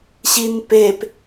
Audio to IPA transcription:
ɕ i n p e p

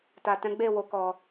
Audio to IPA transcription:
t a˨ t ɛ̃˨˦ ɡ͡b e˦˨ w o˨ k ɔ˨

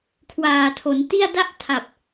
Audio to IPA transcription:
kʰ w aː˨˩ tʰ o˩˦ n t i˥˩ a̯ d a˥˩ ʔ tʰ a˨˩ p̚

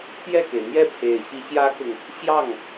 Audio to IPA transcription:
t̪ j ɛ˥˩ k e˩ ɪ̯ n̪ j ɛ˥˩ pʰ e˨˩ ɪ̯ ɕ i˧˥ ɕ j ä˥ k ʊ˨ ŋ | ɕ j ɑ˥˩ ŋ

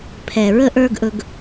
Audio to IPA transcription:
pʰ ɛ˨ ɹ ə˧ ʔ ə˞˧ ɡ ʔ ɵ˧ ɡ

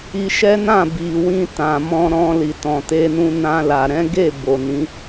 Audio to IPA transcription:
i˧ ʃ ɛ˦ n ã˦˨ b i˨ w ĩ˧ t ã˨ m ɔ̃˧ ɾ ɔ̃˧ l i˨ t ɔ̃˨ t e˧ n ũ˧ n ã˧ l a˨ ɾ ɛ̃˨˦ ɡ e˦˨ b o˨ n ĩ˨˦

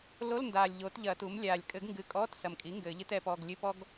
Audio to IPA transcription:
l o˧˥˧ l n d aː˨˩ lʲ ʎ oː˩˥ t ʎ ɐ˨˩˦ t u˩˥ m lʲ aː˨˩ lʲ kʼ ɘ˨˩˦ ɡ ŋ ɡ ɨ˨˩ kʼ ɔː˧˥˧ t s ɐ˨˩ m kʼ i˩˥ ŋ ɡ ɘː˨˩˦ ʎ ɨ˥ t ɛ˩˥ p ɔ˧˥˧ ɡ lʲ ɨ˧˥˧ p ɔ˥ ɡ

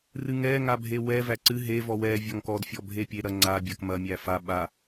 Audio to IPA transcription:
r ɨ ŋ ɛ ŋ a bʱ e w ɛ v æ ǀ ɨ ɦ e v ɔ w ɛ vʲ ɔ ŋ k ɔ d fʲ ɔ bʱ e pʲ e ɾ ɐ ŋ͡ǀ a bʲ ɐ k m ɐ mʲ æ f a ɓ a

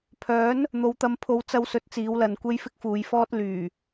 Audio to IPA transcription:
pʰ œː˨˥ n | n̪ o˨˧ w t̪ ɐ˧ m pʰ o˨˧ w t͡s ɐ˧ w s ɵ˨˥ t̚ t͡s iː˨˧ w l ɐ˨ n kʷ e˥ j f ɪ˥ k̚ f uː˨˧ j f ɔː˥ t̚ l yː˨˩

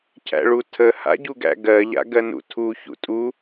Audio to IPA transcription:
cʰ æ̰ ɭ u tʰ ə h a̰ ɟ u ɡ æ̰ ɡ ɜ ʎ a̰ ɡ ɜ n ṵ tʰ u ç ṵ tʼ u

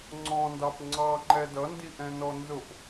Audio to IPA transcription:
ŋ͡ǀ ɔ̃ n d ɑ p ŋ͡ǀ ɑ ŋ͡ǃ ɛ d ʌ n d i ʔ ɛ̃ n ɔ n z ʊ p

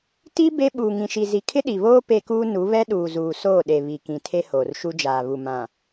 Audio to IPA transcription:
t i˦ b e˦ ɓ uː˨ ŋ ĩ˨ ʃ i˨ z i˨ kʰ ɪ˦ ɗ i˨ β oː˦ p e˦ k uː˦ n u˨˦ β ɛ˦ ɗ uː˨ z uː˨ s oː˦˨ ɗ e˨ β i˨ k ĩ˨ tʰ e˦ h oː˨ r ʃ u˦ d͡ʒ aː˨ β u˨ m ã˨

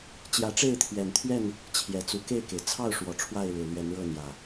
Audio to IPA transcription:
t͡ɕ j ä˨˦ ʈ͡ʂ e˥˨ ɪ̯ t̪ʰ ɥ ɛ˨˩ n t̪ʰ ɥ ɛ˥˨ n | t͡ɕʰ j ɛ˨˩ t͡s u˨˦ k e˥˨ ɪ̯ k e˩ ɪ̯ t͡sʰ ɑ˥˨ ʊ̯ ʂ w ɔ˨˩ ʈ͡ʂʰ w a˥˨ ɪ̯ ɻ ɻ̩˨˩ l ɥ ɛ˨˦ n ɻ ɤ˥˨ n̪ j ä˨˩

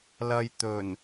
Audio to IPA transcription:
l ɐ˧ j t̪ ɵ˨˩ n

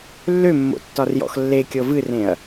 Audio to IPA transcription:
lː ø mː o̰ tː ɒ r j ɔ̰ x lː e kʲ ɤ v ɨ r ẽ ɐ̯

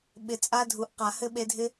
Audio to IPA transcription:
ɓ ɪ˨ t͡sʼ a˦ dʱ u˨ ʔ q a˨ h ɘ˦ ɓ e˧ dʱ ɪ˦

